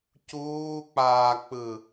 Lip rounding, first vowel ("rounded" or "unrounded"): rounded